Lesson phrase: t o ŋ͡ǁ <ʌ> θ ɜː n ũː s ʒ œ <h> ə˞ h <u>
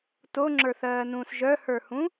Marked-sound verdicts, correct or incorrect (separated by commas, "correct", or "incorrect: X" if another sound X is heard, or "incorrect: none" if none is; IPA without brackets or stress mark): incorrect: ə˞, correct, incorrect: ũ